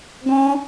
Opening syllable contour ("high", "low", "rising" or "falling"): high